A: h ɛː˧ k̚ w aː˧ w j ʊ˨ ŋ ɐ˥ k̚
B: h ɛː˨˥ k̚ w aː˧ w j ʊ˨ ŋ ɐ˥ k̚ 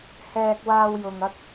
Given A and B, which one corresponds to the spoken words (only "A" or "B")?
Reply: A